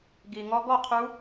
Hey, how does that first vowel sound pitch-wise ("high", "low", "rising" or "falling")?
low